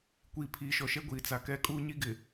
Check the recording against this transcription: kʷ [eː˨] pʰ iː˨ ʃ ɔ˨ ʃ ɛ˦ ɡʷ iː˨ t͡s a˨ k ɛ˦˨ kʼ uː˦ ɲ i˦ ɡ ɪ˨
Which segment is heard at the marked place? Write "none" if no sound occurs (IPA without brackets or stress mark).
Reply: iː˨